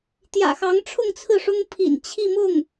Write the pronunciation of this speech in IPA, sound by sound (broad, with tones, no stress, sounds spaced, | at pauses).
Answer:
t̪ j ä̰˨˩ x ɑ˧˥ ŋ ʈ͡ʂʰ ʊ˥˧ ŋ t͡sʰ ɹ̩˥˩ ʂ ʊ˥ ŋ pʰ ḭ˨˩ n t͡ɕʰ i˥˧ m ʊ˥˩ ŋ